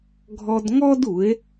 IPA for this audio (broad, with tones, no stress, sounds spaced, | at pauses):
ɡʱ ɔ˧ d ŋ ɔ˦ d u˨˦ e̯